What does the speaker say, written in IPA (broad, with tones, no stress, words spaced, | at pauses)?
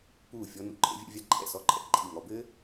puː˧˩fʲɔ˧ nṵ˧˩ǃʼḛ˧vʲɛ̰˧vʲa˧ ǃʼɛ̰˧˩sɔ˧˩ǃʼɛ̰˧˩ ǃʼi˧˩ŋɔ˧bɘː˥